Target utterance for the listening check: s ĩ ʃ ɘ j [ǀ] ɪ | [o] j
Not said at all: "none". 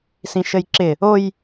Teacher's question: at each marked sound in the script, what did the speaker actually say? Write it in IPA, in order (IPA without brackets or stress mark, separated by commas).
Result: ǁ, o